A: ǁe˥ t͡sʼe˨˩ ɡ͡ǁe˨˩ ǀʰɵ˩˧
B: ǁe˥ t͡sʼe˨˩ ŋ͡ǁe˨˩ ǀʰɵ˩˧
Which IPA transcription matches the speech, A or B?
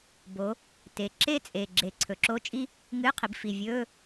A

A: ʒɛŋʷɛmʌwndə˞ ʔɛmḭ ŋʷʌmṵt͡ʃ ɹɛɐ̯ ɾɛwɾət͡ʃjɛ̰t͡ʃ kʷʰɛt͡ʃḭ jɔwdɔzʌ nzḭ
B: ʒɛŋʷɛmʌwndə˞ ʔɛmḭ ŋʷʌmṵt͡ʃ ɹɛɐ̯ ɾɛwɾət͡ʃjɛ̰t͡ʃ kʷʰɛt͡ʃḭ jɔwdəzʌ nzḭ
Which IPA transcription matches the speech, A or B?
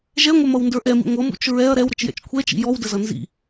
B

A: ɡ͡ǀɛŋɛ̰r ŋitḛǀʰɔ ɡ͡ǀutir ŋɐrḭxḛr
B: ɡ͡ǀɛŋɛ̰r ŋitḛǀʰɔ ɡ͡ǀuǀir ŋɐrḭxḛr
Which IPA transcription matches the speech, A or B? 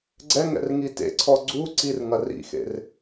B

